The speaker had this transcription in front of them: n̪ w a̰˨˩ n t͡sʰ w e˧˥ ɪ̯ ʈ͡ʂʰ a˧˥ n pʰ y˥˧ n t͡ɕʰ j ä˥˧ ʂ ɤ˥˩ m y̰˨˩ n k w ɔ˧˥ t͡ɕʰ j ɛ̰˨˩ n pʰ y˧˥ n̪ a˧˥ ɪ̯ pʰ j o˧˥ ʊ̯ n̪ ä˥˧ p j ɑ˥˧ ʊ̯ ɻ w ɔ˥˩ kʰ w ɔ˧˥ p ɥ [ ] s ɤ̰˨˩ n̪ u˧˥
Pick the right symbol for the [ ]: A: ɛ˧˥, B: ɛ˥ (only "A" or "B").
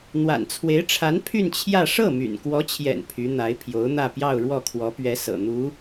A